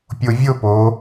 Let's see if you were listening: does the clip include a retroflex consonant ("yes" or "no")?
no